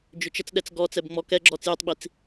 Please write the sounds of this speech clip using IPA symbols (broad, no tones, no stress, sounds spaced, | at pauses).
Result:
d͡ʒ ʏ t͡ʃ ə t͡s ɗ ɛ t͡s ɡ ɔ t͡s ɛ b ŋ͡m ɔ k ɛ ɡ͡ǁ ɔ t͡s j ʏ tˤ ɓ i t͡s